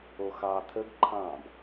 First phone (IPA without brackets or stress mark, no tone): o